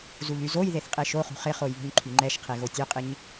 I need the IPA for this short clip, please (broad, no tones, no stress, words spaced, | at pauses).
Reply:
zuʎyzojðeθ qʼeʃoχṳ χɪχoj βṳɲǃʰyŋ͡ǃɛʃqʰe ɣotʲœqʼɪɲ